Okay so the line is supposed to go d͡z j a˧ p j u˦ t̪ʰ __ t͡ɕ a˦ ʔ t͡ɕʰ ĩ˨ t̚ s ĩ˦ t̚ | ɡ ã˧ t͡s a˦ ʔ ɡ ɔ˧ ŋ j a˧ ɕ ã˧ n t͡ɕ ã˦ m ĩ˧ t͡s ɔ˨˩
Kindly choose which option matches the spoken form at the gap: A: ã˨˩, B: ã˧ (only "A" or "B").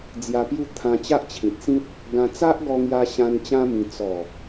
B